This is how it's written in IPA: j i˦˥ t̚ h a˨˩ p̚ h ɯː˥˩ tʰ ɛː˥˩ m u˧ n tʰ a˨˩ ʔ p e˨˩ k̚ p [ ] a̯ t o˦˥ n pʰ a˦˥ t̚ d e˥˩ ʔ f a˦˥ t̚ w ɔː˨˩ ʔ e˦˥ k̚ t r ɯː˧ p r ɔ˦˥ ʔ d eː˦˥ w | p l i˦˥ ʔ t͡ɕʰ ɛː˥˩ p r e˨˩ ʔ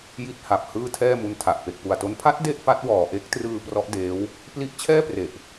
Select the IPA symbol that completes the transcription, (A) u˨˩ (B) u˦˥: A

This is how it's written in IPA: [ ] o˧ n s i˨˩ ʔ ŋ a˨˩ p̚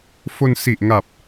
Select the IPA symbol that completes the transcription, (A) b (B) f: B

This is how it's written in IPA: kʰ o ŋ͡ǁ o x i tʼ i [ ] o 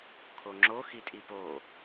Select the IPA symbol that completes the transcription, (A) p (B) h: A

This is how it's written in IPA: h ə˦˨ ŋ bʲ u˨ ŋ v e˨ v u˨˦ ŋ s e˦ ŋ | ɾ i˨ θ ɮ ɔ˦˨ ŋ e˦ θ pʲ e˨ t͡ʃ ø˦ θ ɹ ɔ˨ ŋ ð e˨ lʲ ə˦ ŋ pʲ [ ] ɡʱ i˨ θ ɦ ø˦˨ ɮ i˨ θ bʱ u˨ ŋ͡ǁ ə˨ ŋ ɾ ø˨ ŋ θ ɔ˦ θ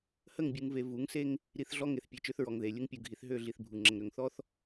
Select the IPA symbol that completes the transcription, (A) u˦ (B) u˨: B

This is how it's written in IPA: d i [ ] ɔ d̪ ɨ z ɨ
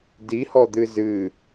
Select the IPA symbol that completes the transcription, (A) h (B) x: A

